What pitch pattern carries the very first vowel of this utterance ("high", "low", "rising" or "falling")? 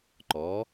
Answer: rising